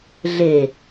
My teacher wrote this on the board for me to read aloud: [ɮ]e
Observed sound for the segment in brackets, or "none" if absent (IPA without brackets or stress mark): ɮ